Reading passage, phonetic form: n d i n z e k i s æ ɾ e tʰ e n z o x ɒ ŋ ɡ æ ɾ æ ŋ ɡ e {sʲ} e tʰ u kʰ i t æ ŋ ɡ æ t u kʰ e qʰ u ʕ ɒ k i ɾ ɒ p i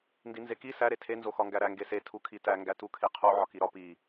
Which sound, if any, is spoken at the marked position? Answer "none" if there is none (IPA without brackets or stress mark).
s